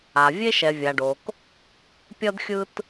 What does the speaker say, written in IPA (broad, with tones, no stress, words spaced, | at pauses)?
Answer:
a˨ vʲe˦ʃɛ˨vʲa˨ɖo˨k | pʲʌ˦dxʲɯ˦t